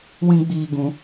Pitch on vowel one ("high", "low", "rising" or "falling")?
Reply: high